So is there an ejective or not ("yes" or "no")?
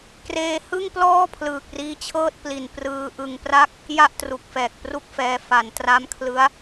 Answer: no